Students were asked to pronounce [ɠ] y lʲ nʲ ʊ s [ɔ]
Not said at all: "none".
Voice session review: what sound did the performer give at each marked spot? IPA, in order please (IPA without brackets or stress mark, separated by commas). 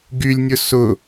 ɡ, ʊ